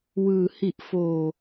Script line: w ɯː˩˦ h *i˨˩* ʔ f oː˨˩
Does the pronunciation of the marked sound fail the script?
no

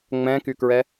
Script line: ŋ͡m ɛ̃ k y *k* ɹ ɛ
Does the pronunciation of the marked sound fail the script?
no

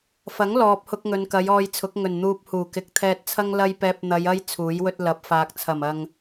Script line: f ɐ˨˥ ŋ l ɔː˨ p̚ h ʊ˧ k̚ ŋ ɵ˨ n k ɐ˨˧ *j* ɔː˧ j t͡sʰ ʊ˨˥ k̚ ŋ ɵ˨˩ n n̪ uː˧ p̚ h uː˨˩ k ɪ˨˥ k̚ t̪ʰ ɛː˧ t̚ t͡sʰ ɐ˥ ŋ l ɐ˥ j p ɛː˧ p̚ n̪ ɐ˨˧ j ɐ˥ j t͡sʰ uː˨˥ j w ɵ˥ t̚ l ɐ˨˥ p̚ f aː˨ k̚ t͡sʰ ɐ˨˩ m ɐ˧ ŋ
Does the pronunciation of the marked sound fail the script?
no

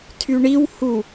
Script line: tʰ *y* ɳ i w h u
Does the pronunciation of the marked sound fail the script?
no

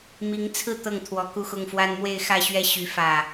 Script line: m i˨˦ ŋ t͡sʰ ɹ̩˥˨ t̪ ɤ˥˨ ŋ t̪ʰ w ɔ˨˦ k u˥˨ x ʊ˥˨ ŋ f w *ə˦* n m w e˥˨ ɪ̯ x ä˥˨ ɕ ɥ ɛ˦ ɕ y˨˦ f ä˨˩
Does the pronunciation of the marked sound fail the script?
yes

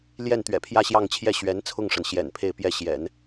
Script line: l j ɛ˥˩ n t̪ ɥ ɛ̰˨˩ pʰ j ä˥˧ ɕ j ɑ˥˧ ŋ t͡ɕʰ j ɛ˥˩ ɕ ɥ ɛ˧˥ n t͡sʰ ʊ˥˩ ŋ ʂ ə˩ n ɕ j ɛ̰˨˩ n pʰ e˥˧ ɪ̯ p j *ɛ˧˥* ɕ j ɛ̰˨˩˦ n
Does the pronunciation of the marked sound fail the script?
yes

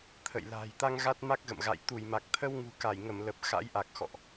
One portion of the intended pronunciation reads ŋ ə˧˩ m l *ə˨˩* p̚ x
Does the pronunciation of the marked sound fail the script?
no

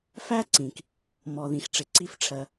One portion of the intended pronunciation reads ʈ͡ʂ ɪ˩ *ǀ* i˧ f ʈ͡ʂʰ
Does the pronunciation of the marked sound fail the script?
no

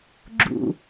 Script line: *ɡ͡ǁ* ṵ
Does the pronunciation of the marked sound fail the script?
no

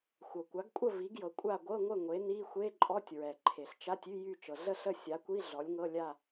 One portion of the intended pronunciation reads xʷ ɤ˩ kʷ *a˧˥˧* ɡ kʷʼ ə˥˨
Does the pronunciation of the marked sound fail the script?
yes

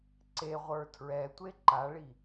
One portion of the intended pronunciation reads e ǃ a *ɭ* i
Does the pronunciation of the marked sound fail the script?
no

